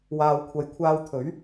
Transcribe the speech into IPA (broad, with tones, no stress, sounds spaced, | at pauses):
w aː˨ w kʷʰ ɐ˨˧ j kʷʰ aː˧ w t̪ʰ ɵ˨˥ ɥ